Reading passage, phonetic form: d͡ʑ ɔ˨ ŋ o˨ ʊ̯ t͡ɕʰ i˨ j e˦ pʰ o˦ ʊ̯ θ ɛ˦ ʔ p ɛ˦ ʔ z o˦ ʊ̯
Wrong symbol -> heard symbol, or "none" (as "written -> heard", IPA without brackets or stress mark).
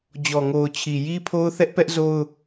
e˦ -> i˦